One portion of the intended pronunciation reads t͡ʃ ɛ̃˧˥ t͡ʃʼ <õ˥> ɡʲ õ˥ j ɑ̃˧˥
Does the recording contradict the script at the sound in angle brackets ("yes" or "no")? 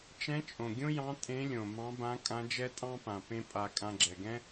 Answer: yes